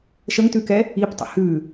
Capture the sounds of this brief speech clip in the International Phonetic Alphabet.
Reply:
ʃ ə ŋ t ʉ k ɛ | i p tˤ ə̰ h ʉ

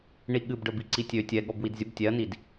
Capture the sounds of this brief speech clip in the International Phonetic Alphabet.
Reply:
ɳ i ɠ ɨ b ɖ ə b i ǀ i tʲ ø tʲ ɛ ɠ ɔ b w i d zʲ ə b tʲ ɛ ɐ̯ n i d

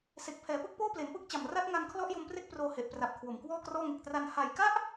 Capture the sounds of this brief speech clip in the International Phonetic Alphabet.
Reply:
s e˨˩ k̚ pʰ ɛː˩˦ p ɯ˥˩ k̚ p oː˥˩ p l e˩˦ n p ɯ˦˥ k̚ t͡ɕ a˨˩ m r a˦˥ t̚ ŋ a˧ n kʰ l ɔ˦˥ ʔ j o˧ m p r e˥˩ k̚ p r oː˧ h e˨˩ ʔ p r a˨˩ p̚ kʰ w o˨˩ m k w ɔː˥˩ k r ɔː˥˩ ŋ e˨˩ k̚ t r a˧ n h a˨˩ j k a˦˥ ʔ

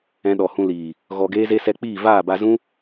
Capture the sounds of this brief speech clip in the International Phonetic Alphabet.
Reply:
ɛ̃˧ ɗ ɔ˨ h ũ˧ l iː˨ | ɣ ɔ˧ ɡ eː˦ z e˦ s ɛ˧ k͡p iː˦˨ v aː˦˨ b a˧ z ũ˦

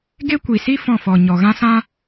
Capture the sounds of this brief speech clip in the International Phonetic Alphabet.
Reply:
ɡ e˦ kʷ i˨ s i˦ f ɔ̃˦˨ f ɔ˨ ɲ ɔ˨ ɣ ã˦ s ã˦

